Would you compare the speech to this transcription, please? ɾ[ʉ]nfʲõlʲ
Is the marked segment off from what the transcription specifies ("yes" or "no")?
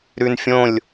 no